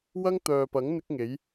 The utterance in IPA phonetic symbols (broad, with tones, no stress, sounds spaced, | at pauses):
w ɐ˥ ŋ t̪ œː˨ p ɐ˨˥ ŋ n̪ ɪ˥ k̚ ŋ e˨˥ j